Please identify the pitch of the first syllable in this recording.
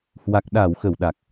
low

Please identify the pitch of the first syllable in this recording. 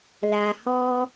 low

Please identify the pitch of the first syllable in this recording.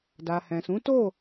low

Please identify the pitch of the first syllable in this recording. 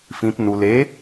low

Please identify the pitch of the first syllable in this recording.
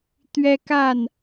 high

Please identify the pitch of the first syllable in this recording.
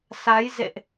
rising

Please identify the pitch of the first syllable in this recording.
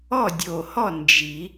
falling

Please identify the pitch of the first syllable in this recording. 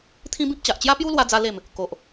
high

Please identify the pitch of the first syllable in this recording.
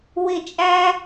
falling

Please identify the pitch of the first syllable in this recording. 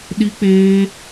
high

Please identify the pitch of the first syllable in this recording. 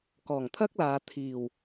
low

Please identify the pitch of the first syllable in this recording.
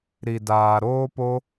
low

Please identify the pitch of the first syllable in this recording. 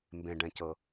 low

